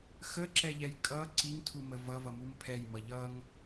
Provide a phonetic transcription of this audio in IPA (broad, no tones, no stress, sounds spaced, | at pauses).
x ə ǁ ɛ ʎ ɛ j kʼ ʌ ǀ i ŋ tʰ u m ə v ʌ v ʌ m u m pʰ ɛ j m ʌ ʎ ʌ ŋ